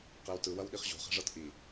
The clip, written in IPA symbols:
q e w t ɯ w ɐ w ɗ i χ ʑ o̤ χ ɛ̤ ʐ ɤ t ʔ i

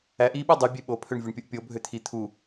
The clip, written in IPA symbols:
æ ʔ i ɓ ɯ dˤ u bʲ e ɓ o pʰ ø ɳ vʲ o ɳ pʲ u ʔ pʲ o bʱ ø t̪ʰ i t̪ʰ u

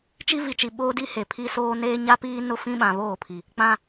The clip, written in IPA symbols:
t͡ʃ i˦ v i˨ t͡ʃ i˨ ɓ oː˦ d i˦ h e˨ pʰ i˦ s oː˦ n eː˦ ɲ a˦ p iː˦ n ʊ˦ f ĩ˦ ɓ ã˨ β oː˦˨ pʰ i˨ | k͡p ã˦

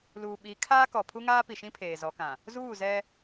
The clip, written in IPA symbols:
l uː˨ ɓ i˨˦ kʰ aː˦ k ɔ˨ pʰ u˦ ŋ aː˦ p i˨ ʃ ĩ˦ pʰ eː˨ z ɔ˨˦ k ã˨ | z uː˦˨ z ɛ˦

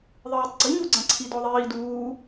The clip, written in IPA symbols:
ðˤ ɨ w i tˤ ɡ͡ǀ i ɲ u ɡ͡ǀ ɐ̃ ǀʰ i d ɔ ðˤ iː d uː

